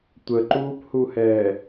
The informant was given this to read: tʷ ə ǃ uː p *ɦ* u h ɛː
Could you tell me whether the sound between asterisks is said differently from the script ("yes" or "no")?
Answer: yes